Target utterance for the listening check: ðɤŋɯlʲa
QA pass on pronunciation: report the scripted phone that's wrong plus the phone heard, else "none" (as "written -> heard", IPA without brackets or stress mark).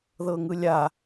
none